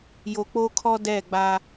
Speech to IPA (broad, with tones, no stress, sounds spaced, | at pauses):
j o˨ k͡p o˦ kʰ ɔ˦ d ɛ˦˨ ɡ͡b a˦